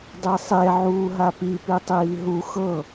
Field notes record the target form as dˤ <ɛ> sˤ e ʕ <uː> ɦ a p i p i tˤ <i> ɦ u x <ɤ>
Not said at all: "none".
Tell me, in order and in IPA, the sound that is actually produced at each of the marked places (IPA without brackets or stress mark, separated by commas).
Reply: e, uː, iː, ɤ